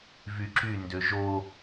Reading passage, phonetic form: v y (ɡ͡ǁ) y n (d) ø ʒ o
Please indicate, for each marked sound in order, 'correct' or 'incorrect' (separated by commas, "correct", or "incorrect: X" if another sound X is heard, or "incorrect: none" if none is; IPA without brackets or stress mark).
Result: incorrect: ǁ, correct